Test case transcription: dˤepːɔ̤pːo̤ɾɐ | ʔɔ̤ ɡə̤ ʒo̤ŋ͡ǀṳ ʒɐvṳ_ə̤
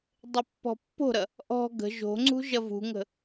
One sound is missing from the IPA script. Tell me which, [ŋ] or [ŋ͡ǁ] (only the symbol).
ŋ